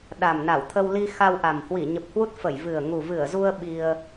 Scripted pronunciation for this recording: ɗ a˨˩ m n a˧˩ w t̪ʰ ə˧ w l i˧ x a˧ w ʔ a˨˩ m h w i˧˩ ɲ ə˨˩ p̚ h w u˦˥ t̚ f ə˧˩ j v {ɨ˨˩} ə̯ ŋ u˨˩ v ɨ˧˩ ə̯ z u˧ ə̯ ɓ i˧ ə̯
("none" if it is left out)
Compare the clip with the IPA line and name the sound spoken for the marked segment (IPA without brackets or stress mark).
ɨ˨˩